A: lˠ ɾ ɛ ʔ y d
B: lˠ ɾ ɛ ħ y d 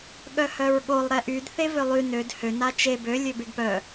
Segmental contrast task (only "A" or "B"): A